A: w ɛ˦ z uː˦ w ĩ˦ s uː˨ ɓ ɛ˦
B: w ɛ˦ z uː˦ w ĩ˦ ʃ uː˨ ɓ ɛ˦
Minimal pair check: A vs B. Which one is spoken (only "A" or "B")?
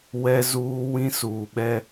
A